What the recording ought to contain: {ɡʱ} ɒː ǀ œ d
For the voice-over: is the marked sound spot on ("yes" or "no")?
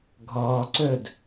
yes